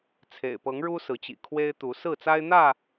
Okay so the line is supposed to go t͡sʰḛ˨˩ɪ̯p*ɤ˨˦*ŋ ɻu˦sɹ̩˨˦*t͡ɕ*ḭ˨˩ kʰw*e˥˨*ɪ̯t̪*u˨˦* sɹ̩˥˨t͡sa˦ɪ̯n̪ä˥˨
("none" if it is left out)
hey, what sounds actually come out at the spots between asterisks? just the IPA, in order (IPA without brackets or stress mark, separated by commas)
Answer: ɤ˨˦, t͡ɕ, e˦, u˨˦